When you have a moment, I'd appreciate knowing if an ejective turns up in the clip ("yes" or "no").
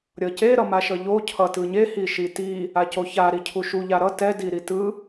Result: no